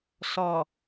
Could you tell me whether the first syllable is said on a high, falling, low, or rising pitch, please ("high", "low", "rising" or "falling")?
low